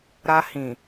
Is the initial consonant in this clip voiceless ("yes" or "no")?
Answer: no